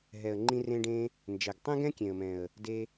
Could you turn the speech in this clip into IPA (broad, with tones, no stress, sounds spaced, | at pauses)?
ɦ ɛ˨ ə̯ ŋ͡ǃ ĩ˧ r ẽ˧ ɖ ẽ˧ | n d͡ʒ ɛ˨ ɡ tˤ ɛ̃˦ ɡ ɛ̃˦ kʲ ẽ˨ ə̯ m ɛ̃˨ ə̯ | d e˧